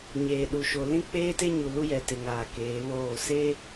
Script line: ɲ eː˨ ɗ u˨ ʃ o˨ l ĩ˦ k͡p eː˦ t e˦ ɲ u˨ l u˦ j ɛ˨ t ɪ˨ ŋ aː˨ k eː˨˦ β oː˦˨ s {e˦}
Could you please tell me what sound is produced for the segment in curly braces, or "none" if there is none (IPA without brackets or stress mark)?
e˦